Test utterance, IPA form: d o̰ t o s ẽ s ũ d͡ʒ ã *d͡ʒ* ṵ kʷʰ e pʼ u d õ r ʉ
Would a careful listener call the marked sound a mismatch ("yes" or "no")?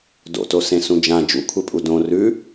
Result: no